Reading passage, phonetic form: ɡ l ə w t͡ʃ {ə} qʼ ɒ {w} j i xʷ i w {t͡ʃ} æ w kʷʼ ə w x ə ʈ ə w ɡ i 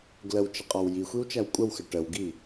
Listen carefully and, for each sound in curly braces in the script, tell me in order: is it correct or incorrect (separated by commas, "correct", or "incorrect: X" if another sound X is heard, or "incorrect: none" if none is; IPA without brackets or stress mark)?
correct, correct, correct